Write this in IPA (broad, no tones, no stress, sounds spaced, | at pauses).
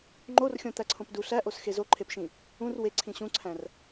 ŋ͡ǃ o r xʲ õ t̪ æ ǀʰ õ p d u ɬ æ ʔ o s x e z o ǃʰ e p ʃ ĩ | ũ r w e ǀʰ ĩ ɕ ũ ǀʰ æ̃ r